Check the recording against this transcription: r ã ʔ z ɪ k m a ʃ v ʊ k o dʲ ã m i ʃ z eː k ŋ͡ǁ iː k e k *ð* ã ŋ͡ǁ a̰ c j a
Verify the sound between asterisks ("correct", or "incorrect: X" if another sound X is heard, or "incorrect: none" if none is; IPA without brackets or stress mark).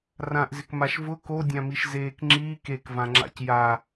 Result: incorrect: v